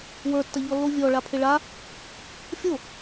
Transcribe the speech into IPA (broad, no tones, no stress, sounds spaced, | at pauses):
w ə˞ tː ɐ ʎ ɔ lː o vʲ ɔ ɭ a pʰ ɪ ɭ a | fʲ o